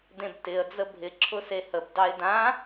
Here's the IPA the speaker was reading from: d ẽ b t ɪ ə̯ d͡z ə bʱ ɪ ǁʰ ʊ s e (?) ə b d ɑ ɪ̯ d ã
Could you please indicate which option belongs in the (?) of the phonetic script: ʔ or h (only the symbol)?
h